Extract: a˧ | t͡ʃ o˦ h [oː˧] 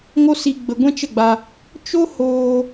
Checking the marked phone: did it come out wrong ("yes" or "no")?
no